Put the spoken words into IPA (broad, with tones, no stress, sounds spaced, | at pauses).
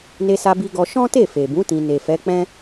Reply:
n e˧ s a˧ b i˧ ɡ ɔ˧ ʃ ɔ̃˦ t e˦˨ f e˨ b ũ˨˦ t ĩ˧ n e˨ f ɛ˨˦ k͡p ɛ̃˦